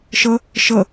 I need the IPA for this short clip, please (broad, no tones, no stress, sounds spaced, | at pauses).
ʃ ə | ʃ ə